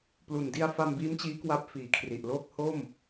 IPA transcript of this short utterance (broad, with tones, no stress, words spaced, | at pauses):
plu˨˩ndi˧a̯ fa˧mbiː˦˥mt͡ɕiː˦˥ kwa˦˥p̚ fiː˨˩kʰri˨˩ʔloː˥˩k̚ ho˥˩m